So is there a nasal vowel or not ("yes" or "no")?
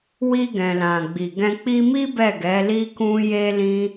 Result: yes